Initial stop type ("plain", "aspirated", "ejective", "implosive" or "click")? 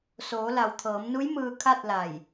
aspirated